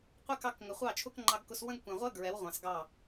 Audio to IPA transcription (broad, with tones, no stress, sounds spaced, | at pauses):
qʷ ɛ˦ k ɑ˧ k ŋ ə˨ χʷ ɑ˦˨ t͡ʃʰ ʊ˦ k ŋ͡ǃ ɑ˧ ɡ k ʊ˧ s w ə̃˦ ɡ kʷ ɛ̃˨ ʁʷ ɜ˦ ɡ ɹ ɛ˨˦ w ʁʷ ɑ̃˨ s ɡ ɑ˦˨